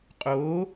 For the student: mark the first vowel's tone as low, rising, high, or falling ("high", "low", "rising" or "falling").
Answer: rising